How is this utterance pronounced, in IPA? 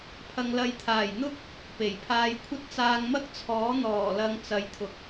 pʰ ɐ˨ ŋ l ɐ˨˧ j t̪ʰ aː˨˩ j n̪ ʊ˥ k̚ | p e˨˩ j pʰ aː˧ j kʷʰ ɐ˥ t̚ t͡s aː˧ ŋ m ɐ˥ k̚ t͡sʰ ɔː˨˥ n̪ ɔː˨˩ l ɐ˨ ŋ t͡s ɐ˨˧ j t̪ʰ ʊ˨ k̚

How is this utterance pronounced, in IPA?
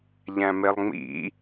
ʎ æ̃ m e lˠ ŋ͡m ḭ

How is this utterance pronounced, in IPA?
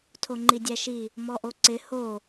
tʰ o ŋ͡ǃ i dʲ æ ʃ i | m ɔ ʔ o ǀ ɪ h o

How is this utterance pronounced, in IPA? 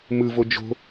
m ɯ v o d͡ʒ o̤

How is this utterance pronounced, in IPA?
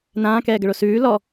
n ãː k ɛː ɡ ə ɭ o s ʉː l ɔ

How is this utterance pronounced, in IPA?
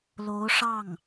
l o˧˥ ʊ̯ ʂ ɑ˥˩ ŋ

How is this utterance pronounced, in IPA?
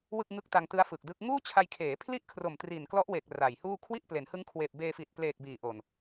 w ɯ˥˩ k̚ ŋ ɯ˦˥ k̚ t a˧ ŋ t ɯ˦˥ a̯ f ɯ˨˩ k̚ d ɯ˦˥ k̚ ŋ uː˥˩ t͡ɕʰ a˧ j kʰ eː˩˦ pʰ l i˥˩ ʔ kʰ r o˨˩ m t r i˨˩ n k l ɔ˦˥ ʔ w e˨˩ k̚ r a˨˩ j h uː˥˩ kʰ w i˥˩ ʔ p l e˩˦ n h ɯ˦˥ ŋ kʰ w eː˨˩ p̚ b eː˧ f iː˨˩ t̚ p l eː˨˩ k̚ b iː˨˩ ʔ o˨˩ n

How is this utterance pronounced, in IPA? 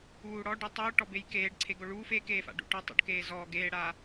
uː ɽ ɔ ɖ u tˤ uː ʈ ɔ b e j k eː ɖ ǀʰ e ɡ o ɭ uː f e k eː f a̰ ɖ ṵ ʈ ɔ tˤ ṵ ɖ k eː z ɔː ɡ eː ɽ aː

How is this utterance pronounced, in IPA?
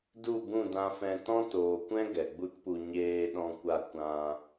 d u˦˨ b ũ˦˨ d ã˧ f ɛ̃˧ t ɔ̃˦ t oː˨ kʷ ɛ̃˦ ɡ ɛ˨ ɡ͡b u˦ t p u˧ ɲ eː˧ ɗ ɔ̃˧ kʷ a˧ kʷ ã˧

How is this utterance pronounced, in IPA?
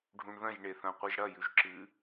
ɖʱ ũ ɳ ð ɐ̃ ʒ ɳ e θ ɐ̃ qʷ ɨ ʒ ɽ ɐ j ʉ ʒ ǁ ɨ

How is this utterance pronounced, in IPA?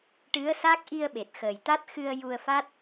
ʈ ɨ˧˥ ə̯ s a˦˥ k̚ ʔ i˧ ə̯ ɓ e˨˩ t̚ x ə˨˩ j t̪ a˦˥ t̚ x ɨ˧ ə̯ j u˧ ə̯ f a˦˥ t̚

